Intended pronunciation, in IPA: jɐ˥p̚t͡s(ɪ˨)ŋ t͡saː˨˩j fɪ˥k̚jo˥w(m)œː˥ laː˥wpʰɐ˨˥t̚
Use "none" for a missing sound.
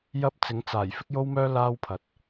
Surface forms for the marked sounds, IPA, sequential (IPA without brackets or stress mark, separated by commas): ɪ˨˥, m